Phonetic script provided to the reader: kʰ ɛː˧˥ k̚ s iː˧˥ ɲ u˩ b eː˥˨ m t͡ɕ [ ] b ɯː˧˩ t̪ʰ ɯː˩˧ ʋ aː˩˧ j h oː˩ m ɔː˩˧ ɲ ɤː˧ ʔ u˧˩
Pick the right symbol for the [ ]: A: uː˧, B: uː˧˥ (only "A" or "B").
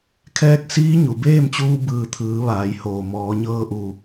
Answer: A